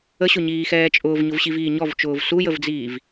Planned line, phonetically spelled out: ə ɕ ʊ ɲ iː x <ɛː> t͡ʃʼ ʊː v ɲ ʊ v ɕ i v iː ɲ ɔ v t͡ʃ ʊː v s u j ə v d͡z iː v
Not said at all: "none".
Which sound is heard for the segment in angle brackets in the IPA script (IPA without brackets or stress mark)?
ɛː